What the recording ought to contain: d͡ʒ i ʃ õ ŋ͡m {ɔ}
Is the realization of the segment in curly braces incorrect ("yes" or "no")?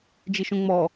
no